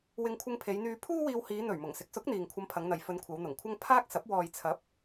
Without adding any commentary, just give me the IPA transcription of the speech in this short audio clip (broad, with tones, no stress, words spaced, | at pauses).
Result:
wɪ˧ŋkʷʰɪ˧ŋpʰe˨˧jn̪yː˧ pʰuː˥wiː˧whiː˨˧n̪ɵ˨˩ɥ mʊ˨˩ŋsɪ˨˥k̚sʊ˨˥k̚n̪iː˨ŋ kʷʰɐ˧mpʰɐ˨˧ŋn̪ɐ˨j fɵ˧nkʷʰɐ˨˧wn̪ʊ˨˩ŋkʷʰɐ˥ŋ pʰaː˥k̚sɐ˨˥p̚ wɔː˨jt͡sʰɐ˨˥p̚